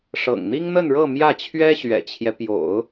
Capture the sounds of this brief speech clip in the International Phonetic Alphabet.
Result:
ʂ ɤ̰˨˩ ŋ n̪ i˥ ŋ n̪ ə˥˧ n ɻ ɤ˥˧ m j ä˥˩ t͡ɕʰ ɥ ɛ˥ ɕ ɥ ɛ̰˨˩ t͡ɕʰ j ɛ˦ p j o̰˨˩˦ ʊ̯

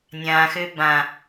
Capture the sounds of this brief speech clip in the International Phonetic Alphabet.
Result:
nʲ ã x ø b ã

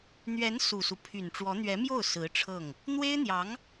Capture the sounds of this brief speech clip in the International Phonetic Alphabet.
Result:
n̪ ɥ ɛ˧˥ n s u˨˩ s u˦ pʰ y˨˩ n ʈ͡ʂ w ɔ˧˥ n̪ ɥ ɛ˧˥ m j o˥˩ ʊ̯ s ɹ̩˧˥ ʈ͡ʂʰ ɤ˥˩ ŋ | n̪ w e˥ ɪ̯ n̪ j ɑ˧˥ ŋ

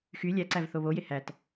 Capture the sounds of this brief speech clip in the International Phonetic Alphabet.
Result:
x y lʲ æ ǀ æ v θ o β o j e h æ t

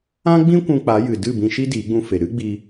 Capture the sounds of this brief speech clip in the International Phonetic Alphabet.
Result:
ã˦ ɡ͡b ĩ˦ kʷ ũ˧ k͡p a˨˦ j ɨ˨ d ɨ˦˨ b ĩ˧ ʃ i˦ d iː˨˦ ɡ͡b ũ˧ f e˨ ɾ ɨ˦ ɡ͡b i˧

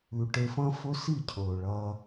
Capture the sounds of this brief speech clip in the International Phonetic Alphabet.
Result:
ʉ˨ ʈ e˧ f ɐ̃˦ f ɵ˦ s i˦˨ cʰ ɵː˨ ɭ ɐː˧

